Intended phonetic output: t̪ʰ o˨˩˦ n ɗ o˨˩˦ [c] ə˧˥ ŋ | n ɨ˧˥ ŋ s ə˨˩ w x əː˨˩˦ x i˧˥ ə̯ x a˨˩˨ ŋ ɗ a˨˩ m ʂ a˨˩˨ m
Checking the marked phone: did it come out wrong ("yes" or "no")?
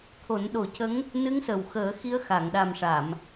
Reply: no